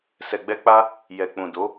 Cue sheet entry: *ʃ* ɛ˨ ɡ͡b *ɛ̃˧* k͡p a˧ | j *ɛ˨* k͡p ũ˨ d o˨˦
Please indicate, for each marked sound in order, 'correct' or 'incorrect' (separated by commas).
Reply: incorrect, incorrect, correct